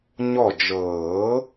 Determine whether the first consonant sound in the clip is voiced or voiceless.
voiced